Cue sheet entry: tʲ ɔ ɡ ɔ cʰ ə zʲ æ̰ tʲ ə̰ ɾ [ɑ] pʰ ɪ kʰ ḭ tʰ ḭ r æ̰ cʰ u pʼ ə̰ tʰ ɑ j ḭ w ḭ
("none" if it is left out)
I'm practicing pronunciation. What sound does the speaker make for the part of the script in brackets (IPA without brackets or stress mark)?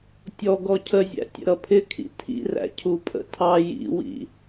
ʌ